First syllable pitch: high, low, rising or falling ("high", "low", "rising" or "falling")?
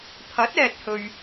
rising